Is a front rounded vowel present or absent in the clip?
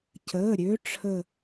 present